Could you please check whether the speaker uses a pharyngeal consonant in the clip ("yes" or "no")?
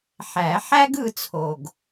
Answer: yes